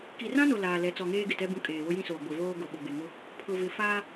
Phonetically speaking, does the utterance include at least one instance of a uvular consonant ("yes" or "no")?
no